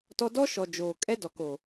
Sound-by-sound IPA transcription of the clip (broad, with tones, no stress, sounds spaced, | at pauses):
t ɔ˦ d ɔ˦ ʃ ɔ˨ d͡ʒ oː˨ kʼ ɛ˦ d ɔ˨ k o˨